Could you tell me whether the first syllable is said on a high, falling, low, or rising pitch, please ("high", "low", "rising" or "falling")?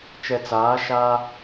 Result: low